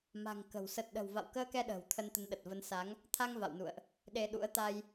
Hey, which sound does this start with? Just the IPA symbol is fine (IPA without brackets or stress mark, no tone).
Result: m